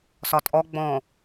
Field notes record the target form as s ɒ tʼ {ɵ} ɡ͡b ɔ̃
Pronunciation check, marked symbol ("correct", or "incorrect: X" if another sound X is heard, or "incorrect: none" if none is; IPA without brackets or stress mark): incorrect: ɔ